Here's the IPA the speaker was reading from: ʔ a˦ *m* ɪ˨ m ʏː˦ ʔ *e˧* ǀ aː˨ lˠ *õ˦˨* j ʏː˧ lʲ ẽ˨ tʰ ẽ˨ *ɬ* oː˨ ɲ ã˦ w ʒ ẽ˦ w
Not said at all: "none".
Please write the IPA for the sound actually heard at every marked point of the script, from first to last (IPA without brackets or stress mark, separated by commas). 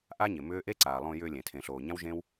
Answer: ɲ, e˦, õ˧, ɬ